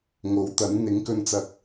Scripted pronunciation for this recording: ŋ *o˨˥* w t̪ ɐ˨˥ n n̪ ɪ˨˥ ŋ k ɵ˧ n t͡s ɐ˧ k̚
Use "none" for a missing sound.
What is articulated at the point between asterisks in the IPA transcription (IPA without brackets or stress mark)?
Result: o˨˥